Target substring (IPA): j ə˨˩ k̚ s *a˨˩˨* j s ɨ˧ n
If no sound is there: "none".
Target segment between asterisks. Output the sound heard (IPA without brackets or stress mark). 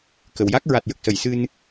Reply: ə˨˩˨